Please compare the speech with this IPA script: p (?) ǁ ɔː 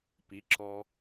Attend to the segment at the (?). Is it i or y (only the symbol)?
i